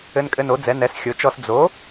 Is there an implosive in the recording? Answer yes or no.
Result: no